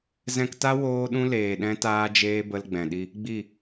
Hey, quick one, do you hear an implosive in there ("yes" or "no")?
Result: yes